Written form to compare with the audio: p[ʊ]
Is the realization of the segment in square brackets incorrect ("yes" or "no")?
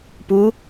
yes